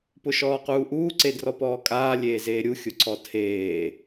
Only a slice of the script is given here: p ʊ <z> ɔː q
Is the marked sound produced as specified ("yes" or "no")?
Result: no